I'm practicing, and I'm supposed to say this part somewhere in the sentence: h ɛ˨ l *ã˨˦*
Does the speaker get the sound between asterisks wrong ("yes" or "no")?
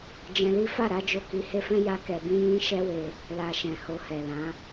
no